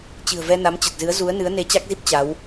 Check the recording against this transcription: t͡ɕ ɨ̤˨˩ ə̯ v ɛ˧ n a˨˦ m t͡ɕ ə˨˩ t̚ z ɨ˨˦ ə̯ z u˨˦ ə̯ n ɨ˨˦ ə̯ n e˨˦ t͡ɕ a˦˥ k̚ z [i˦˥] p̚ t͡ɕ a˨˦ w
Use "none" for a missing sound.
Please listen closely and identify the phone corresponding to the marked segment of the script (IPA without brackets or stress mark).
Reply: i˦˥